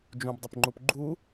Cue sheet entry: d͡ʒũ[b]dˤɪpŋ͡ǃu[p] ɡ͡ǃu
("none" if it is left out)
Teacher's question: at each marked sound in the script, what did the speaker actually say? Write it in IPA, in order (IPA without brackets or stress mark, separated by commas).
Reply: b, p